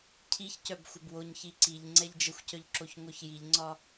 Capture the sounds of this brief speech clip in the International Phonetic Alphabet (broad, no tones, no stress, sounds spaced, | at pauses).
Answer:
cʰ i ç c œ b xʷ ə b w o ɲ ç i ǀ i ʎ ŋ͡ǀ ɛ ʎ d͡ʒ ə xʷ c œ ʎ ǁ o ç ŋʷ œ ç j i ʎ ŋ͡ǀ ɒ